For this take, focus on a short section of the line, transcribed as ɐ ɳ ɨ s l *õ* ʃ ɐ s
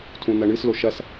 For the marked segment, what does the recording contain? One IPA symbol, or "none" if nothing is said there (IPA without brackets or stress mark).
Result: o